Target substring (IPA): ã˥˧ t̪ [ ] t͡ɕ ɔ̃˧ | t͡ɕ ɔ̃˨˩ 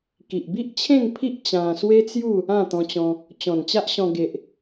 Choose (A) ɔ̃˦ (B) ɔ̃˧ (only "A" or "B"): B